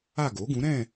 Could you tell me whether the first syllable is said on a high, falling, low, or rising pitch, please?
falling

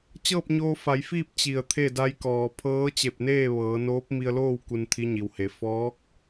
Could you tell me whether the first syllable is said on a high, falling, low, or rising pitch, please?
falling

